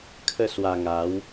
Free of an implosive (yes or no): yes